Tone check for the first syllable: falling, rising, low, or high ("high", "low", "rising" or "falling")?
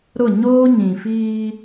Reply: falling